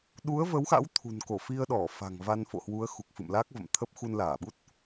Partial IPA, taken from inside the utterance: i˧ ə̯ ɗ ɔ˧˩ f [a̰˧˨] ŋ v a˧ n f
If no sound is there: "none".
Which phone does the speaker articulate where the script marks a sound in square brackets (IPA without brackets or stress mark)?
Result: a̤˨˩